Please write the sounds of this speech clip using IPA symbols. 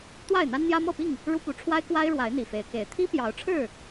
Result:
t̪ w a˥˨ ɪ̯ n̪ a˦ n n̪ j ä˦ m ɤ˥˨ p i˥˨ ŋ | ɻ u˦ p u˨˦ ʈ͡ʂʰ w a˦ ɪ̯ k w a˦ ɪ̯ ɻ w a˨˦ ɪ̯ n̪ i˨˩ f e˨˦ ɪ̯ k e˨˦ ɪ̯ t̪ʰ i˦ p j ɑ˨˦ ʊ̯ ʈ͡ʂʰ ɻ̩˥˨

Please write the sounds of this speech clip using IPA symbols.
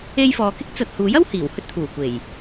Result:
e˧ j f ɔː˨ k ɪ˥ k̚ t͡s ɐ˨ t̚ h uː˨˥ j ɐ˥ w h iː˨˩ w h ɵ˥ t̚ t̪ʰ uː˨˩ kʷ e˨˩ j

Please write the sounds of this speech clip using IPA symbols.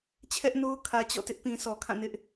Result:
t͡ɕʰ ɛ˦ ʔ n o˦ ʊ̯ kʰ ä˨ t͡ɕ ɔ̰˦˨ t ɪ˦ ʔ p ĩ˨ sʰ ɔ˨ kʰ ã˦˨ n ɪ˦ ʔ

